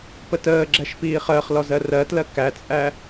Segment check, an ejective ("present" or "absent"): present